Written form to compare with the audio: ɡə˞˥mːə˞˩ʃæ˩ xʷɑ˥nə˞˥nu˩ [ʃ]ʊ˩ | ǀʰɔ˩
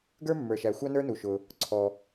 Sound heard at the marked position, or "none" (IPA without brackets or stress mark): ʃ